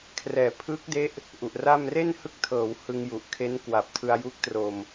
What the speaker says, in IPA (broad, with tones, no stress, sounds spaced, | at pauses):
kʰ r ɛː˩˦ pʰ ɯː˦˥ k̚ d e˦˥ ʔ | ʔ u˨˩ ʔ r a˥˩ m r e˥˩ n h ɯ˦˥ k̚ tʰ ɤː˩˦ w h ɯ˧ ŋ j u˨˩ ʔ kʰ e˦˥ n k w a˨˩ p̚ tʰ ɯ˧ a̯ j u˦˥ k̚ t r o˧ m